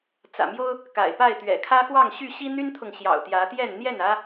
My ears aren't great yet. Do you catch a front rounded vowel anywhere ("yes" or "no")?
yes